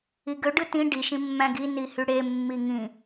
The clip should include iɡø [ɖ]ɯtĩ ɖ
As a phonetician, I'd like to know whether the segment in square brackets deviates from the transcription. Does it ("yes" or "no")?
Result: no